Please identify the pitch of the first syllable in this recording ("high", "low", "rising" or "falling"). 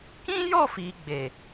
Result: high